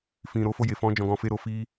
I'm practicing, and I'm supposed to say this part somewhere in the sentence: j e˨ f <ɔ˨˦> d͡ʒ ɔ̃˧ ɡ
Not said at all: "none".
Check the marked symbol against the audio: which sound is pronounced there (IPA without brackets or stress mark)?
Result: ɔ̃˨˦